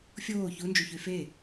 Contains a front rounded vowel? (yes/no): yes